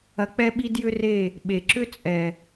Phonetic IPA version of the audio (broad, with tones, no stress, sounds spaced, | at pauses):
ɐ˧ k͡p ɛ˦ ɓ i˦ d j ʏ˦ r e˦˨ | ɓ e˨ ǁ ʏ˦ t͡sʼ ɛ˨